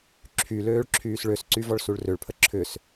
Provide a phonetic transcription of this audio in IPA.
ǁʰ y l øː ɭ ǁʰ yː s ɭ ø s ǀ y v ɔ ɭ s u ɭ r ø ɭ pʰ ə ǁʰ ʏ s

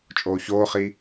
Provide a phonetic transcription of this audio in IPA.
t͡ʃʼ oː ç oː χ iː

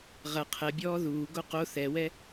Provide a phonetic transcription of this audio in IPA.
ʁ ɐ qʰ ɛ bʲ ɔː ð uː ɡ o q o θ ɛ w ɛ

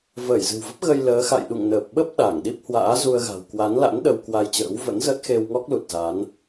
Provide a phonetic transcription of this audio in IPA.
v əː˧˩ j z ɨ̤˨˩ w v ə˦˥ p̚ ɣ ə˧ j l əː˨˦ x a̰˧˨ j ɗ ṵ˧˨ ŋ n əː˨˩ p̚ ɓ ə˦˥ p̚ ɗ a˧˩ ŋ ɗ i˦˥ p̚ h w a̰ː˧˥ z u˧ ə̯ ɣ a̤˨˩ w k w a˨˦ n l a̰˧˥ n ɗ ə˧ w k w a˧ j t͡ɕ ə̰ː˧˥ w v ə̰˧˥ n z ə˦˥ t̚ x e˧ w ŋ ɔ˦˥ k̚ l u˨˩ t̚ z a˨˦ n

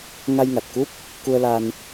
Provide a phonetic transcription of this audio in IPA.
ŋ a˧ j ŋ a˨˩ t̚ k u˦˥ p̚ | k u˧ ə̯ l a˧ n

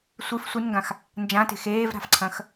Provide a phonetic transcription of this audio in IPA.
sʷ ɨ f sʷ ɨ n ŋ ɡ ã x | n d͡ʒ ã t e̤ x eː v ɾ a̤ f ǀʰ ɐ̃ x

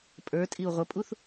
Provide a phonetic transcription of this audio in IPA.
pʼ ə˞ tʼ i u̯ ʁʷ ə pʼ u θ

